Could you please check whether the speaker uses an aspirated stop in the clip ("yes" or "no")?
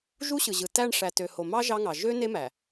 no